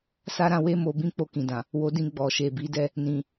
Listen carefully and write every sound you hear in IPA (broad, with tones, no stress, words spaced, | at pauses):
sa˦ɾã˧we˦mo˧ bĩ˦k͡po˧kĩ˨dã˨ | wo˧dĩ˧ ɡ͡bɔ˨ʃe˨bi˨˦dɛ˦˨ | nĩ˨